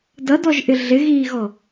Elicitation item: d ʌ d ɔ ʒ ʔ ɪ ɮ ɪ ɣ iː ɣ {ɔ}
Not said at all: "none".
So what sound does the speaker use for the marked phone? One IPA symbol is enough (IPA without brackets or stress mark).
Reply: ɔ